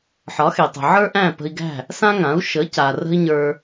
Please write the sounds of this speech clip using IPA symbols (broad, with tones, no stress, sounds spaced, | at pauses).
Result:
ħ ɒ˩˥ x e˩ tˤ ə̤˩ ʕ ə˞˥ ʔ æ̃˥˩ p ə̤˧ i̯ ɡ æ̤˥˩ | s ã˥ ŋ ã˩˥ u̯ ʃ ə˩˥ c a˩ r ə̤˥ i̯ ɲ ə˞˧